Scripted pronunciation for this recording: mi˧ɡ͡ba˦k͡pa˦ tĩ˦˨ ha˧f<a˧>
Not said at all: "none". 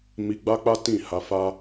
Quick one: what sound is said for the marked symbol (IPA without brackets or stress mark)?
a˦